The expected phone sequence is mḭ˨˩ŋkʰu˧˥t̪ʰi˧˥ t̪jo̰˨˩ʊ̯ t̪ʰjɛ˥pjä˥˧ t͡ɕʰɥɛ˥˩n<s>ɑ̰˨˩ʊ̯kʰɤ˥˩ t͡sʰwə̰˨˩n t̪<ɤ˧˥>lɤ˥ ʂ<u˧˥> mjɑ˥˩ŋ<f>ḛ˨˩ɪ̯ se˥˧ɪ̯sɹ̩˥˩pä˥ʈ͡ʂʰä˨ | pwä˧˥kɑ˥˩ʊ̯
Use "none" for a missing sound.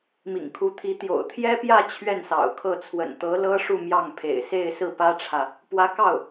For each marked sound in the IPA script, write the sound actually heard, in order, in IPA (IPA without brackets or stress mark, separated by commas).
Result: s, ɤ˧˥, u˥˧, pʰ